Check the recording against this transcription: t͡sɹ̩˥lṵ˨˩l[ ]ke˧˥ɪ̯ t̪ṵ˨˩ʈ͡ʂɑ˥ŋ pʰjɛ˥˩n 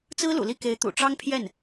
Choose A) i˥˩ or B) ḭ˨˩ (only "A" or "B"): A